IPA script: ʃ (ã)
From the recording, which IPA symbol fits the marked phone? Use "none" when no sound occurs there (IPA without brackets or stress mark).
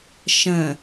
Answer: ə̃